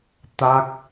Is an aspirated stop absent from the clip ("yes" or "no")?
yes